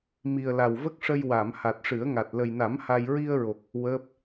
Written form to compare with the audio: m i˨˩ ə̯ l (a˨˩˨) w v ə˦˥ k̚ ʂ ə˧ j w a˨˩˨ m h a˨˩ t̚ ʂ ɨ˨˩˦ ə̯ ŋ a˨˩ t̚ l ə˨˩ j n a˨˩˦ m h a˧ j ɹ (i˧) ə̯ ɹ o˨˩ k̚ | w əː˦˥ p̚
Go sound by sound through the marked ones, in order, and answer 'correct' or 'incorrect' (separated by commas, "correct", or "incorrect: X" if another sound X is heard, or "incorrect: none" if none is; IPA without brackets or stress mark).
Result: incorrect: a˨˩, correct